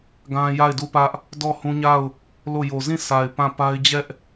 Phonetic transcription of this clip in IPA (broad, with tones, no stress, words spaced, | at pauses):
ɡã˦ja˦˨ɪ̯du˦˨pä˦ʔ | dɔ˦˨ hũ˦ɲa˦˨ʊ̯ | lo˦˨jo˨ zĩ˦˨ sʰa˨ɪ̯ pã˦˨pa˦ɪ̯ d͡ʑɛ˦ʔ